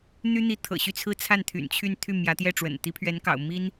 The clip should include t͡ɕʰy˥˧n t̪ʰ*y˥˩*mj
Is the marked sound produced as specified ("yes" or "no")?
yes